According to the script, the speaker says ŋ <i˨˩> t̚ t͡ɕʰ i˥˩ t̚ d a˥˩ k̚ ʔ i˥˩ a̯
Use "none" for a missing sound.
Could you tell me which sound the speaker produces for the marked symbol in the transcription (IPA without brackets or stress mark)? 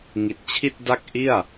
i˨˩